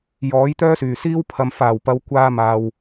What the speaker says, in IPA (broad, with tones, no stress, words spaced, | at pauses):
jɔː˨˥jt̪œː˥syː˨˩siː˥w pʰɐ˧m faː˨˩wpɐ˨˧w kʷaː˧maː˨w